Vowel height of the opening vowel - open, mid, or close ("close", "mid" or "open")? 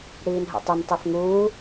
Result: close